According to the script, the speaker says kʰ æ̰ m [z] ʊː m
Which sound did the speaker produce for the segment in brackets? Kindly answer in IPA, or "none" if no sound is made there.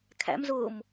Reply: z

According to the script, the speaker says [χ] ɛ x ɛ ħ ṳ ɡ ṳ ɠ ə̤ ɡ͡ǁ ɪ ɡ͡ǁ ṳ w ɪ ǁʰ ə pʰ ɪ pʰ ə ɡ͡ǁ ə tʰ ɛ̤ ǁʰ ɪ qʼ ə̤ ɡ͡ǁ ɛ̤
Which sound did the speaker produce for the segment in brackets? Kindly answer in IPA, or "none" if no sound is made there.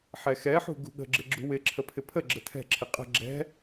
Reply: ħ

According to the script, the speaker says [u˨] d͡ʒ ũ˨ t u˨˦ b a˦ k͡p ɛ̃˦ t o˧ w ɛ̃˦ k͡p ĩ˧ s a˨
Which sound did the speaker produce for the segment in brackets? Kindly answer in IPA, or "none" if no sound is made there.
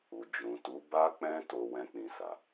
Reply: u˨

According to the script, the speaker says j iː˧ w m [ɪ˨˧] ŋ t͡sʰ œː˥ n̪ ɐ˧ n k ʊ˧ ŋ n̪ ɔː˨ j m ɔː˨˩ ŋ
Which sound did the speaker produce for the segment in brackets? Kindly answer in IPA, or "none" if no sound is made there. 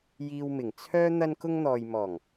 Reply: ɪ˨˩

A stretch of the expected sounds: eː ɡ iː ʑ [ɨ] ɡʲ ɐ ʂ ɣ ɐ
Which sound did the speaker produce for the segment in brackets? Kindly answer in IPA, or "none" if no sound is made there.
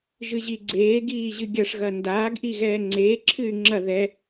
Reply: ɨ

